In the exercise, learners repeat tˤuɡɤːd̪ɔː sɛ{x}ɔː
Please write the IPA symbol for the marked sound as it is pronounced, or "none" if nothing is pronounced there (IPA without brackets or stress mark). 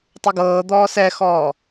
x